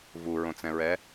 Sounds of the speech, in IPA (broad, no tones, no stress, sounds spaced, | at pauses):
v u ɹ õ t͡s ɛ̃ ɹ ɛ